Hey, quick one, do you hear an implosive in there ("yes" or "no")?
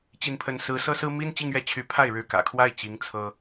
no